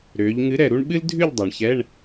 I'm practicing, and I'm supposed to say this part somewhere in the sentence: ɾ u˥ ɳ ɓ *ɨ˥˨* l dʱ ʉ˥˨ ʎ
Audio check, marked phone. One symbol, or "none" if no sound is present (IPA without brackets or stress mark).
ɨ˥